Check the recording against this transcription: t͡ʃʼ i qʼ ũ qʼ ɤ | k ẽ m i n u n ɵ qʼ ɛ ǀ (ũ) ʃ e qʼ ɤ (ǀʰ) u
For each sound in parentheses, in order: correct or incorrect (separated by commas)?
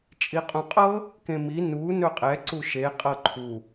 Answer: incorrect, incorrect